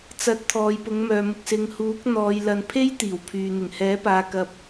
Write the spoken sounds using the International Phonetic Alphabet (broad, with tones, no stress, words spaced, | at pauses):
t͡sɐ˧t̚ t̪ʰɔː˨˧jpʊ˨˥ŋmœː˨mʊ˧k̚ sɪ˨ŋhuː˨˥k̚n̪ɔː˨˧j lɐ˨npʰe˥j t̪iː˨˩wpʰyː˨ n̪ɪ˨˩ŋhɛː˨˥paː˨ kɐ˧p̚